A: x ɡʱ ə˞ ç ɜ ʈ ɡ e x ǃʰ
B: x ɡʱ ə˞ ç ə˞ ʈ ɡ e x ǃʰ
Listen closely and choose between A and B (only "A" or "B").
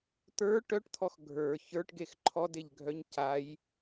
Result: B